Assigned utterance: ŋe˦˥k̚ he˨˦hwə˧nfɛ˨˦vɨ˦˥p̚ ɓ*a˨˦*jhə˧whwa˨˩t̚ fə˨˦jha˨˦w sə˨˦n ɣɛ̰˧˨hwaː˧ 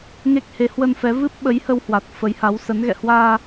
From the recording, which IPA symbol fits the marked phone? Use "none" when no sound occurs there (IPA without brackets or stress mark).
ə˨˦